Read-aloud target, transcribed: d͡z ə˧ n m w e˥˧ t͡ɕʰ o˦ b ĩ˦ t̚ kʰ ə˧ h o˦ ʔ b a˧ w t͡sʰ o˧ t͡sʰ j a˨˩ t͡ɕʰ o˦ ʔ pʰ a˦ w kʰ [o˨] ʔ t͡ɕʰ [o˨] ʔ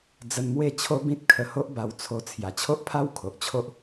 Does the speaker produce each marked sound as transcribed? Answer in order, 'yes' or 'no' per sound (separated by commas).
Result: yes, no